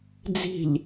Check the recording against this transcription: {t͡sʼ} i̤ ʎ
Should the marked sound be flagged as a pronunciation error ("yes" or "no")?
yes